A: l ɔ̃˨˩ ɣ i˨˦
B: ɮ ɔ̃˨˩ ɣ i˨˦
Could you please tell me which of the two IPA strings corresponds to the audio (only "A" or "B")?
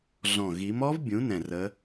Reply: B